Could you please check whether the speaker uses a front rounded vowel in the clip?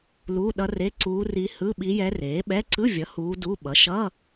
no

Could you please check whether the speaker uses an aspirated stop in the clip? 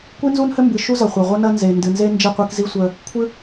yes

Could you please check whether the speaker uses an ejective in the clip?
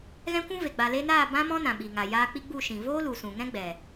no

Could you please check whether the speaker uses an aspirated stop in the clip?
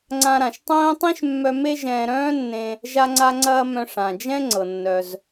no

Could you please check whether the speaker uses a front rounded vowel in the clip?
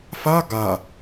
no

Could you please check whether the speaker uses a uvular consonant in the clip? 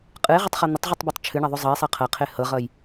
yes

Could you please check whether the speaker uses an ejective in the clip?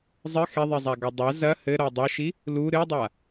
no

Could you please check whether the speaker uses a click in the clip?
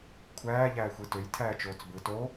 no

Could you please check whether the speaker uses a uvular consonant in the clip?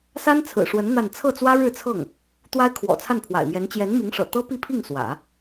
no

